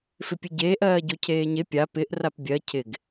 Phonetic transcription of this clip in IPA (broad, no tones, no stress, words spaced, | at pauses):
fɪpʲɨɟeːʔ ɜːɟocʰeːɲe pʲa pɪʔ rapbʲɜ cʰɪɡ